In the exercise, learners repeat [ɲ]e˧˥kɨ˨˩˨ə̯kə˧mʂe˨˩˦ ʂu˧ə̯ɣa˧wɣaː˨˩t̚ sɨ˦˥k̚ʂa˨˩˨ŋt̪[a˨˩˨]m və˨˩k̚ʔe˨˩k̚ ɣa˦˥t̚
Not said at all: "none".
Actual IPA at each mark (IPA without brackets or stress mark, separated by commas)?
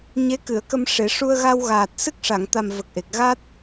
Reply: ɲ, a˨˩